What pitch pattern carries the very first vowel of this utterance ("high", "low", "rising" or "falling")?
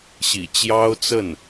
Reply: low